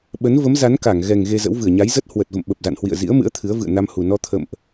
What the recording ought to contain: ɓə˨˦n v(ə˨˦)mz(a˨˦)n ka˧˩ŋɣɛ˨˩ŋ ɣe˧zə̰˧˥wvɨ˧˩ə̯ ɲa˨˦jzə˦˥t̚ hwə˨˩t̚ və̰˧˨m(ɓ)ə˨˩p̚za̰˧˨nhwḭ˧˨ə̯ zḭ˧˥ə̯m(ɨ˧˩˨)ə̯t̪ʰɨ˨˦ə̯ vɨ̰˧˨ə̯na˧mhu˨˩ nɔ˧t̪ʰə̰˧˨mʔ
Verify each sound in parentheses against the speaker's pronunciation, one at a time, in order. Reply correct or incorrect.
correct, correct, correct, incorrect: ɨ̰˧˥

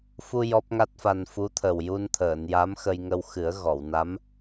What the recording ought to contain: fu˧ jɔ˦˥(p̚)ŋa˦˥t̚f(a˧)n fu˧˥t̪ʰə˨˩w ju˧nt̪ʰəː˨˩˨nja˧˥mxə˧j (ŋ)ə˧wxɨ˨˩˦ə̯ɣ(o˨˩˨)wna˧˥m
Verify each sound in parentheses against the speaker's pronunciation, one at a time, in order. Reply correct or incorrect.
correct, correct, correct, incorrect: ɔ˨˩˨

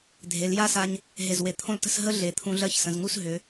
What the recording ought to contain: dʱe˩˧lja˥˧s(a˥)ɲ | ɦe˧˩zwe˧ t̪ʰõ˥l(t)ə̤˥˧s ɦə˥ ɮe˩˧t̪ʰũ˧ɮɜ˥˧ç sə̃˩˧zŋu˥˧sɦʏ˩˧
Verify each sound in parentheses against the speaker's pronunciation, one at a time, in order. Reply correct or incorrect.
incorrect: a˧, correct

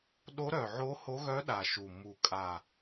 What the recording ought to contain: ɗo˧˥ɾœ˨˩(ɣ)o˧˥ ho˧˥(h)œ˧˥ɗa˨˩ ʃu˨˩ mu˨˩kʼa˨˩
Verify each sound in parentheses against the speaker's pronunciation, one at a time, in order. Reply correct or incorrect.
incorrect: ʕ, incorrect: ɣ

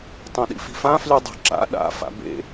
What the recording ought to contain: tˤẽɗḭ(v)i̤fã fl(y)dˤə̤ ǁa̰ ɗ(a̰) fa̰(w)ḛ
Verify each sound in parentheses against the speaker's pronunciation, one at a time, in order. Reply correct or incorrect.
incorrect: f, correct, correct, incorrect: b

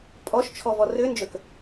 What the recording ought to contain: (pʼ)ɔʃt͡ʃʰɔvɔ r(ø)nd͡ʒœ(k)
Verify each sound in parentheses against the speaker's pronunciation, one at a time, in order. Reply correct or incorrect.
correct, correct, correct

